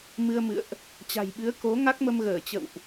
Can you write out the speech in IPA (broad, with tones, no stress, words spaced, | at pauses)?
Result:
mɨ˧ə̯mɨ̰˧˨ə̯ʔ | t͡ɕa̤˨˩jɓɨ˨˦ə̯ko˨˦ ŋa˦˥k̚mə˧mɣəː˧˩ t͡ɕə̰˧˨wʔ